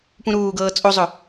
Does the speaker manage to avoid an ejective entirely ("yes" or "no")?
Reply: no